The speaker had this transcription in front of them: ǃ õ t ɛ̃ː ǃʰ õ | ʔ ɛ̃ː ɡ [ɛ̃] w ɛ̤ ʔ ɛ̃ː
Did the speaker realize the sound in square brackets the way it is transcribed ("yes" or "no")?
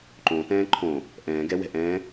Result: no